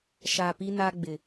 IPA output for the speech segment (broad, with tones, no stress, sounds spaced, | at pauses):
ʃ a˨ p i˦ n a˦ ɡ͡b ɪ˨